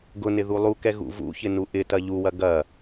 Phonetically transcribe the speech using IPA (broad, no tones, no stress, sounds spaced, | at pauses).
ɡ ʊ n ɪ ð u lˠ u k ɛ ɣ ṵ v ṵ ç ɪ n u ʔ ɪ t ɐ ʎ u w ɐ ɡ ɐ